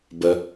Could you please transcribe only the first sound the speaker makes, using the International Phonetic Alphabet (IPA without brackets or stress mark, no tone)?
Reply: b